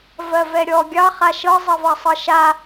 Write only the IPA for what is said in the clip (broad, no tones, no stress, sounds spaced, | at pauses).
v ɜ v ɛ ɾʲ ɔ ɡʲ ɑ χ a ʃ ɤ zˤ ɜ v ɑ sˤ ɤ ʃ a